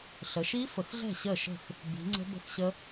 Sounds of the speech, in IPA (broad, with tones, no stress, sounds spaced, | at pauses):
ɬ ə˩˧ ʃ i˦˥ f ə˩˧ x ɮ ɛ̤˥˩ ɕ ə˥˩ ʃ ə̤˥˩ x | b i̤˩˧ ŋ͡ǀ ə̤˦˥ b ə̤˥˩ x ɕ ə˦˥